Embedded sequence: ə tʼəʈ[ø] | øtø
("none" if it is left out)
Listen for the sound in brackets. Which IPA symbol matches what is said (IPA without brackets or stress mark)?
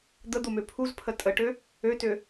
ø